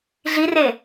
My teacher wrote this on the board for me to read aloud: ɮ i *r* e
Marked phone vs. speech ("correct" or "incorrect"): correct